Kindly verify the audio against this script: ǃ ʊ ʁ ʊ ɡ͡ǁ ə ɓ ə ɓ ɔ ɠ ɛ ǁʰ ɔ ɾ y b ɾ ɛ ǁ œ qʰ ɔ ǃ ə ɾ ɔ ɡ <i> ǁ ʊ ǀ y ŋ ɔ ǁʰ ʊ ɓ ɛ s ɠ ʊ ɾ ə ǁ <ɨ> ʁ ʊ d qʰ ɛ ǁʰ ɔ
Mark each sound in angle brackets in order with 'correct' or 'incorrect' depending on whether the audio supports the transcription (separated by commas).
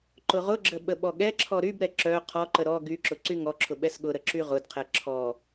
incorrect, incorrect